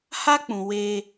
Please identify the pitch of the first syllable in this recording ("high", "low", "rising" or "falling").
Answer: high